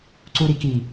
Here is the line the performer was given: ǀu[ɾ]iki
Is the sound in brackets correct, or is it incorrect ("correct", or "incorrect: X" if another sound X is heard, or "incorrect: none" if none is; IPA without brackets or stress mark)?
correct